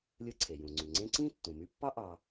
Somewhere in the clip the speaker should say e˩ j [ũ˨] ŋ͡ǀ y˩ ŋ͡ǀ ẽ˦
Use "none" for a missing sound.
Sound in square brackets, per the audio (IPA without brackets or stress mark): ũ˩